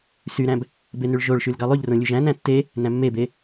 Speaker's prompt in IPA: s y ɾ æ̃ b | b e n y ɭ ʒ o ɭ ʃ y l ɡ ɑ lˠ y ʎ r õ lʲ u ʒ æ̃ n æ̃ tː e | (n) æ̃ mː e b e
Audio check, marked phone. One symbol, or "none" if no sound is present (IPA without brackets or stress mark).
n